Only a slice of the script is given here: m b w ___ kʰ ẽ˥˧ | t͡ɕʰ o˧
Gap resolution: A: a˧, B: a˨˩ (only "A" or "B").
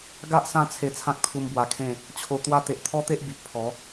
A